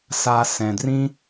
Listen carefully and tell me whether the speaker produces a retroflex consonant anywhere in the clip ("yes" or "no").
no